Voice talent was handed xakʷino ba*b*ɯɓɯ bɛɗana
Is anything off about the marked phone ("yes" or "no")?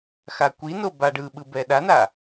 yes